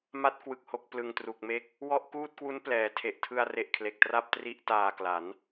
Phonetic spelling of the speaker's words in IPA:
ma˦˥t̚kwɯ˨˩k̚ho˨˩k̚ plɯ˨˩ŋtru˨˩k̚me˥˩k̚ | wɔ˥˩ʔkuː˥˩t̚kwu˦˥n plɛː˩˦tʰe˨˩ʔ tʰɯ˧a̯re˨˩ʔ kʰle˨˩k̚ tra˥˩p̚tri˦˥ʔtaː˨˩kla˩˦n

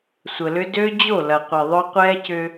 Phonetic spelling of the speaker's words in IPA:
sʷə˨lʏ˦ dø˦d͡ʑo˦˨ lɐ˨ qʷi˨ðˤœ˦ qʷɛː˦cʏ˦

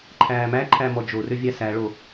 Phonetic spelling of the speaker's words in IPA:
ǃʰæːmæ ǃʰæmɔd͡ʒo røvʲæsæ ɭo

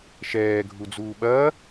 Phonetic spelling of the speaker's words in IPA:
ʃɛː ɡʱud͡zuːɓɐː

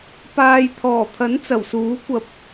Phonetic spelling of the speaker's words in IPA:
paː˨jt̪ʰɔː˨˩t̪ʰɐ˨˥n t͡sɐ˨˩wsuː˨˥ kʷɐ˨˥p̚

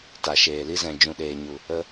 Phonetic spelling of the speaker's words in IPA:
ta˨ʃeː˨li˦ zɛ̃˨ d͡ʒũ˨ɗeː˨ɲu˨ | ə˧

